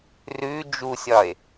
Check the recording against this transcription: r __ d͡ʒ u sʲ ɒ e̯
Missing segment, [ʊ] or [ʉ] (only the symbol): ʉ